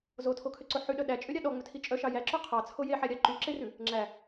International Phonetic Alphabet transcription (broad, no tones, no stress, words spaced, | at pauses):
zotʰokʰøǀo ħyɗœ ɗæt͡ʃʼøɾʲɑ ɗɔŋ͡mɵtʰi t͡ʃʼœʃɑ jæǁo qʰɑt͡sʰo jeħæɾʲɑ ǃyǁerʉ | ŋ͡ǁæ